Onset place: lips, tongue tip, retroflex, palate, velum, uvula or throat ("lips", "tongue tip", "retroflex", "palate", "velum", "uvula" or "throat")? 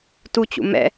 tongue tip